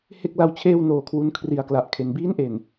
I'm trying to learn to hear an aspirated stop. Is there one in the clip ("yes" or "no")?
yes